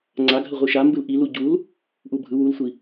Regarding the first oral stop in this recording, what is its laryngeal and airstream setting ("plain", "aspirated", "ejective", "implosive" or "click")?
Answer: click